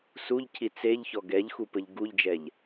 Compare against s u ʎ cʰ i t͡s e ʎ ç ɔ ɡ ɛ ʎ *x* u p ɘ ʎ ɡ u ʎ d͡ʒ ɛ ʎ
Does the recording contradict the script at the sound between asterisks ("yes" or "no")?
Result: no